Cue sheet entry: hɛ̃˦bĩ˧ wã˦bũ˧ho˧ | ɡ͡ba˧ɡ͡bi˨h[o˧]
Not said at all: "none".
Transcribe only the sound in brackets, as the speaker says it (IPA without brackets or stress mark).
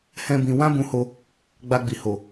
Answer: o˨